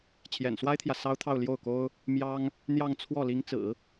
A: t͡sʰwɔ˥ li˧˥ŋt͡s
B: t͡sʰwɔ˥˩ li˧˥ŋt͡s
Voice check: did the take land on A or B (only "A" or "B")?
B